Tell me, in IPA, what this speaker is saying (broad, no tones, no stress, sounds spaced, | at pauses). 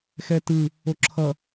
x ɛ t ɯ | o ǁʰ ʌ